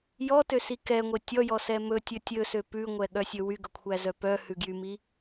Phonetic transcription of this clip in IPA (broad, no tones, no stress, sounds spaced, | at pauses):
j ɔ t ø s i k ɛ ŋʷ e tʲ ɔ j ɔ s ɛ m ɵ tʲ ɵ tʲ ɵ s ø p ʉ ŋʷ ɛ ɠ œ sʲ ɵ w y ɡ ɵ kʷʰ æ z œ p œ h ʉ ɡ j y m i